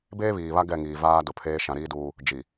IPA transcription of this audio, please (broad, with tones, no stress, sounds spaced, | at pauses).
b eː˦ β iː˨ β a˦ ɡ ɛ˦˨ ŋ iː˨ v aː˦ d ʊ˨ pʰ eː˦ ʃ ã˨ ɾ iː˦ d uː˦ | d͡ʒ i˨